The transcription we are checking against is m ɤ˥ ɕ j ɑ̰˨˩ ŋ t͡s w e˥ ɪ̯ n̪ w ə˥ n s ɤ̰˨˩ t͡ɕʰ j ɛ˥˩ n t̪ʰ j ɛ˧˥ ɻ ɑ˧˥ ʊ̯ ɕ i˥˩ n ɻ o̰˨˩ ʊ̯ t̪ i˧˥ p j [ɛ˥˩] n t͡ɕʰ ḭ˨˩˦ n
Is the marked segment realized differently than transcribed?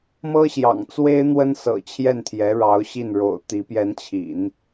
yes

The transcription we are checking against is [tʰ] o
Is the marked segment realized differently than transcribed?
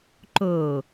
yes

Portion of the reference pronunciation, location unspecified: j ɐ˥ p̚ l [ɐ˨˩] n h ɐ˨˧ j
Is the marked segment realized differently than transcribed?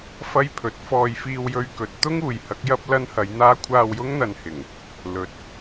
yes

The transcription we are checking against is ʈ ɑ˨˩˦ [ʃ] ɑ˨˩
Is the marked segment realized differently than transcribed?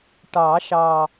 no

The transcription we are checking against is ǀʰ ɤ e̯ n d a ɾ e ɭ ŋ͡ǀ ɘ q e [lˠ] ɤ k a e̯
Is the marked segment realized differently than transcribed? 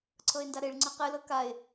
yes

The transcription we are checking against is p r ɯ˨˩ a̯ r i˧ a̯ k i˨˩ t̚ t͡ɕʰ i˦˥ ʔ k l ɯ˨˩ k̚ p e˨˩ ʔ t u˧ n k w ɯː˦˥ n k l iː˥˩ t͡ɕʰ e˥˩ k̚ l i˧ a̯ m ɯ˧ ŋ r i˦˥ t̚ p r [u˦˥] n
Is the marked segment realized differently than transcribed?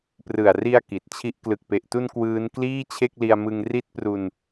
yes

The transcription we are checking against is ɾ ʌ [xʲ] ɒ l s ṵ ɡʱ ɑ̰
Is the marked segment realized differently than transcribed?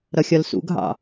no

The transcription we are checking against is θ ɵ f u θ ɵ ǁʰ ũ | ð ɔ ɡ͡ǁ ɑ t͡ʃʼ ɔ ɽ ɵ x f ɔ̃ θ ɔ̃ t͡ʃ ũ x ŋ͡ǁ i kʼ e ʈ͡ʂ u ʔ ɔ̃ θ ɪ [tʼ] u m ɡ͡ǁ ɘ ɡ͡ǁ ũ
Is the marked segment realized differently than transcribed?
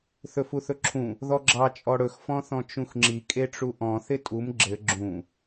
no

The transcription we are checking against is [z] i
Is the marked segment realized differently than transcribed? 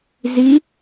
no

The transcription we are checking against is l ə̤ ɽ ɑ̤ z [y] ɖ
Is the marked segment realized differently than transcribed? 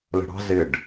yes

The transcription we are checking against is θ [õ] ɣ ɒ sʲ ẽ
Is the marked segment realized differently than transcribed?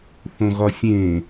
no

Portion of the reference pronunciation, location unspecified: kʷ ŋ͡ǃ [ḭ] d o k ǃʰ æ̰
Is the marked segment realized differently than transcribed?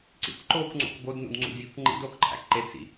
no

